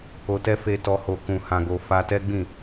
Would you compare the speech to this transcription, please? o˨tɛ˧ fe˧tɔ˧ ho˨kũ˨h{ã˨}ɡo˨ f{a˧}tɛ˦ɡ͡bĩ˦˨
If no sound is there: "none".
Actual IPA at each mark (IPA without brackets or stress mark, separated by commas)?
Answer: ã˨, a˧